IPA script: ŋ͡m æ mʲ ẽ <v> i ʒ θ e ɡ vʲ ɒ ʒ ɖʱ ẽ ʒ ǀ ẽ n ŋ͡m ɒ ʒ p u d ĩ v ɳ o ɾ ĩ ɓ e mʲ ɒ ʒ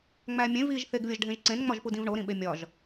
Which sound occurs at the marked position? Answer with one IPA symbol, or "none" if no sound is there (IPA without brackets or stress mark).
v